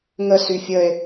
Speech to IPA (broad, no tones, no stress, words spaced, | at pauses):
ŋəsy fʲəe̯